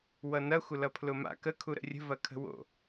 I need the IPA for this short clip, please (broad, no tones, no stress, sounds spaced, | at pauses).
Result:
w ʌ n ɐ xʷ ə l ʌ pʰ l ʊ m a̰ k ə kʰ u ɾ ə̰ rʲ ə̤ v ɐ kʰ ə̤ w o̰